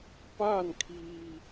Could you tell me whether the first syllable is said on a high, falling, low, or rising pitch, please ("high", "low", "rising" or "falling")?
falling